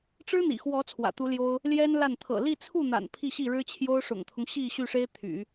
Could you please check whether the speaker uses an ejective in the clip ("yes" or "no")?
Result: no